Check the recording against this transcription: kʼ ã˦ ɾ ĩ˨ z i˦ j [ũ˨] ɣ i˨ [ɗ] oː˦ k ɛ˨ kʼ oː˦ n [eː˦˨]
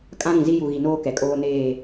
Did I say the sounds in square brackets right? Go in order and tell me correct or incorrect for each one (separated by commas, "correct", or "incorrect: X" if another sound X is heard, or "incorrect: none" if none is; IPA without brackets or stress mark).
incorrect: u˨, incorrect: n, correct